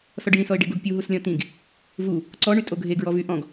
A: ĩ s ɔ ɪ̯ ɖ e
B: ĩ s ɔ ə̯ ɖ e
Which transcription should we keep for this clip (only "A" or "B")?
A